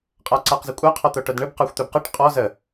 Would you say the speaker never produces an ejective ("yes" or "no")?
no